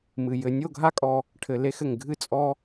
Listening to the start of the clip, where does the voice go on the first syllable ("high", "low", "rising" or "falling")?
low